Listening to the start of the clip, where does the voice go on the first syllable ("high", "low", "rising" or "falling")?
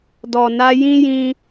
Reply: low